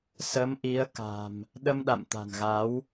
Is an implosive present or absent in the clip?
present